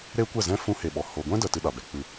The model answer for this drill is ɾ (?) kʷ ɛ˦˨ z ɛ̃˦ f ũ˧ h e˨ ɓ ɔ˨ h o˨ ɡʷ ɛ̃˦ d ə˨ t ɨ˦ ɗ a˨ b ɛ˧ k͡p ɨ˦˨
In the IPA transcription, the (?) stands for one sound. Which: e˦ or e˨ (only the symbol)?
e˦